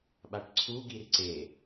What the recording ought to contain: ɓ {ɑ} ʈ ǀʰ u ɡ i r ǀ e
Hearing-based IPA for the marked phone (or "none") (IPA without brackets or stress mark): a